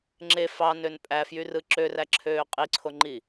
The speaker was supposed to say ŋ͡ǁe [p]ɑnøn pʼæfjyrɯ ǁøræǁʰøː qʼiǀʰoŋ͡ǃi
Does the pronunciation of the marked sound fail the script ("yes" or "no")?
yes